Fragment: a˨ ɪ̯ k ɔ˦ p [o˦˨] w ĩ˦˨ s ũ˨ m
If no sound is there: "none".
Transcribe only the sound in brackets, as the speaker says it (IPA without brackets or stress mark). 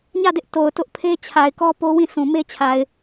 o˦